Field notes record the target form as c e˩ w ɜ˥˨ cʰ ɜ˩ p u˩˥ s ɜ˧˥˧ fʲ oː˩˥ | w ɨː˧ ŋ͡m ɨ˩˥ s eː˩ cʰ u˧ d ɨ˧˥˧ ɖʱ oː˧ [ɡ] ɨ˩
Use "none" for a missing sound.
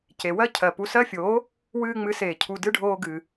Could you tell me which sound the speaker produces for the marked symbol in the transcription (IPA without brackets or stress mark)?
ɡ